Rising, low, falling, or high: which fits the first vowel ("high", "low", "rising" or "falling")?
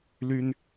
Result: high